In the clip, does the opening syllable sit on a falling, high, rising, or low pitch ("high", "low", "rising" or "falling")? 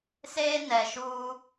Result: high